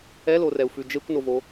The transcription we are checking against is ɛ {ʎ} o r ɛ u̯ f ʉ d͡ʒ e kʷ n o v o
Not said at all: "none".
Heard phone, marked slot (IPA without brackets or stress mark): l